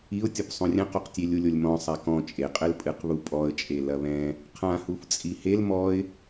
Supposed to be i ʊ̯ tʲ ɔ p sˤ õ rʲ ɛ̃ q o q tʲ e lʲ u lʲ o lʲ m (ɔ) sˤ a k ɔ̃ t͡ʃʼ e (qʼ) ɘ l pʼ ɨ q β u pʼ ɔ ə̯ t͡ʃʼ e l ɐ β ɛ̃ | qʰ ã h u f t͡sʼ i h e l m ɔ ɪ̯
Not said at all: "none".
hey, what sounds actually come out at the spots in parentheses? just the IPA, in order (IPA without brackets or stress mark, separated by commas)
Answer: ɔ̃, qʼ